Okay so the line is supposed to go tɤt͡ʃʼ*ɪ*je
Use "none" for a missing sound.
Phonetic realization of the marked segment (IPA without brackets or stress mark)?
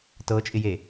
ɪ